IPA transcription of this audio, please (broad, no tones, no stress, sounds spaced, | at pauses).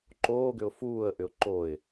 ǃ oː ɡ ʏ ʊ̯ f uː ə̯ ʔ ʏ ʊ̯ ǃ o ɪ̯